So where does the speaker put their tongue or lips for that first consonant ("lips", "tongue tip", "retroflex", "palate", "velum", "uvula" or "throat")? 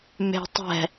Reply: lips